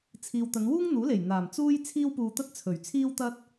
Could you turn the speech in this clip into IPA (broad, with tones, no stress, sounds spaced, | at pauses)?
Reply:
t͡sʰ iː˨ w t̪ ɐ˨˧ n w uː˥ ŋ n̪ uː˨˥ l e˨˩ j n̪ aː˨˩ m t͡s uː˥ j t͡sʰ iː˥ w p uː˧ t̪ ɐ˥ t̚ t͡sʰ ɵ˨˩ ɥ t͡sʰ iː˥ w t̪ ɐ˥ t̚